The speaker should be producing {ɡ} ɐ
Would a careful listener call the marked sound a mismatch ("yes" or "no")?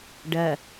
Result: yes